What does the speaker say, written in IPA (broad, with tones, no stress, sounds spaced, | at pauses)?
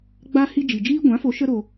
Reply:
ɡ͡b a˦ h i˦ d͡ʒ i˨ d͡ʒ iː˦ ɡʷ ã˨˦ f o˨˦ ʃ ə˦ ɾ o˧